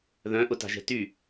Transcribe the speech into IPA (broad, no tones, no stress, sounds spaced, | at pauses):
ð œ̃ ʔ ʊ t a̤ ʒ ɛ̤ t y